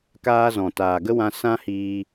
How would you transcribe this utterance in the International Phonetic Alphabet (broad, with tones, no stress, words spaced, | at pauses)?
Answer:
kaː˧zɔ̃˨ taː˨ɡə˦wã˧ sã˦ hiː˧